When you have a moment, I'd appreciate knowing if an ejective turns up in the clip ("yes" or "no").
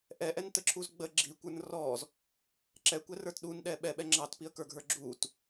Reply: no